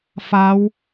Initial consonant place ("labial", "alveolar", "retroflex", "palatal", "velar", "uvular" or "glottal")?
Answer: labial